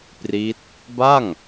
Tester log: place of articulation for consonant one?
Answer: labial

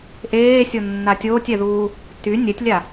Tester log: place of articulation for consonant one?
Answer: glottal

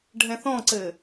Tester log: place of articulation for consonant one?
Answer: retroflex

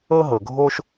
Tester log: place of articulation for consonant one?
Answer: glottal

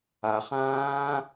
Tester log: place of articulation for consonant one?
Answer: uvular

